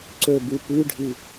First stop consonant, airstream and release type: click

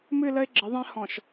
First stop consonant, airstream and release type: click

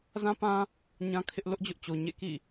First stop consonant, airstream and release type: plain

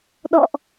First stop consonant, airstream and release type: implosive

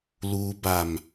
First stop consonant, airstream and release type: plain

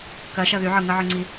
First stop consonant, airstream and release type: plain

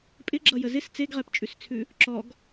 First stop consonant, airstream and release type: ejective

